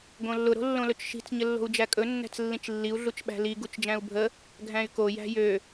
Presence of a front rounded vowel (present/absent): present